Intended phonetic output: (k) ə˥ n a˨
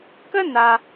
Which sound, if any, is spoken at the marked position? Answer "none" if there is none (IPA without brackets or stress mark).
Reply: k